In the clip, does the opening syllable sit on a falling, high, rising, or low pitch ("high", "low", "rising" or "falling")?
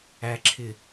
low